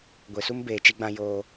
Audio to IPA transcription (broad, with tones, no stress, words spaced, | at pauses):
ɡʷe˨su˦m beː˨t͡ʃi˦ɡ͡bã˦ joː˦